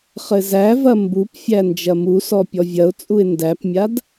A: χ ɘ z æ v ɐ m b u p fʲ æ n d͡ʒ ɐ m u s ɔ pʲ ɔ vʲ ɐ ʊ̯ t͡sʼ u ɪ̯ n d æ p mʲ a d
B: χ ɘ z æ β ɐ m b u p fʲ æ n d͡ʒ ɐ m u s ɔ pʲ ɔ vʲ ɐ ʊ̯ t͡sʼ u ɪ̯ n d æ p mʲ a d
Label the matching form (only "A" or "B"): A